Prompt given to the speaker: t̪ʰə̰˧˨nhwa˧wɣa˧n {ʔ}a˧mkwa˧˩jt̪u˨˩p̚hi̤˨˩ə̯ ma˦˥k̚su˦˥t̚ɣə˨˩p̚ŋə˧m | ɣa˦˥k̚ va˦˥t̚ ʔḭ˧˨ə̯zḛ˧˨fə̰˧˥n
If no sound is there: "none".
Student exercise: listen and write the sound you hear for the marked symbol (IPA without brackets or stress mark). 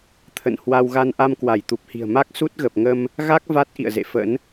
ʔ